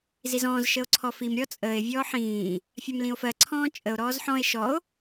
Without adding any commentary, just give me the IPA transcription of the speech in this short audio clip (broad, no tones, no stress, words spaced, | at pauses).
zizɔ̃ːz ʃəo̯ǀʰɔfim ɾʲɔt͡sʼəːe̯ vʲɔːħĩː | fʲamlĩo̯fɜ ǀʰɔ̃ːt͡ʃʼəo̯ ɾɔːzħɔ̃e̯ ʃɔo̯